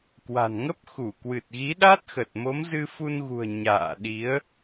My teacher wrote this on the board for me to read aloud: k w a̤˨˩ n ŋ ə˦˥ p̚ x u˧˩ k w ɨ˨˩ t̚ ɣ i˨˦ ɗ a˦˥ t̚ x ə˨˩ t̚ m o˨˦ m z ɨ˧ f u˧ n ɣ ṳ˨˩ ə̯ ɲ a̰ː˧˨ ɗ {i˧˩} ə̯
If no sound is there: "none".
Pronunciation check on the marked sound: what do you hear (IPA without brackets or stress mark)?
i˨˦